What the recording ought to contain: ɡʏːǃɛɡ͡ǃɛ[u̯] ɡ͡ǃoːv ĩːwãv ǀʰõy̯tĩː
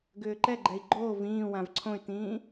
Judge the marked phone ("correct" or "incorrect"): incorrect